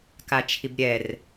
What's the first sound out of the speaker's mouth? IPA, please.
k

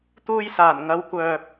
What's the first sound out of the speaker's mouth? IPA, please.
t̪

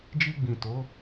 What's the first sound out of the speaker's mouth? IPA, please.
d͡ʒ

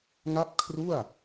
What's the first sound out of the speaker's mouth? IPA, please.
ŋ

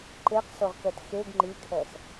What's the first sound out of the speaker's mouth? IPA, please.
ǃ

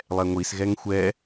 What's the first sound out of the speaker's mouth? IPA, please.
lˠ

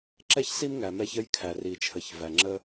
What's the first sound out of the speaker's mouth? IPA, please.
ǁ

